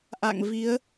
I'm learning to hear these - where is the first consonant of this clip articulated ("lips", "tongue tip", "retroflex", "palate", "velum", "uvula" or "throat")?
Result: throat